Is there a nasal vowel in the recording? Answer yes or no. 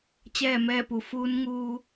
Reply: no